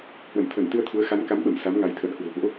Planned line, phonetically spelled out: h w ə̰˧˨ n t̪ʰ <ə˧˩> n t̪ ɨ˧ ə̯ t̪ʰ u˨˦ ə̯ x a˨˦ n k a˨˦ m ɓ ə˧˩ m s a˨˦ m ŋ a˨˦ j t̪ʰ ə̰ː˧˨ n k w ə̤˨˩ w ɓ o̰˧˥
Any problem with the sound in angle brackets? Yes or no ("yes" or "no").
no